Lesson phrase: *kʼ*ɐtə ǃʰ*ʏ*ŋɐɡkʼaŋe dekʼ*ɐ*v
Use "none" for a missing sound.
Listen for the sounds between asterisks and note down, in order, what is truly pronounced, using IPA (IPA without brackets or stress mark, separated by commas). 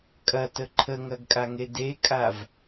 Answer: kʼ, ə, a